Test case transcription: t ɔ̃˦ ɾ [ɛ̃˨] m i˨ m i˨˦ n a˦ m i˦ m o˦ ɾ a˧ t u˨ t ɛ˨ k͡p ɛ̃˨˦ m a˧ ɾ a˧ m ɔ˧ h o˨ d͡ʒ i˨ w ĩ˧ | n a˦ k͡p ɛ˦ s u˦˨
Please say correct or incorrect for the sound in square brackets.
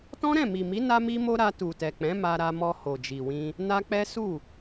incorrect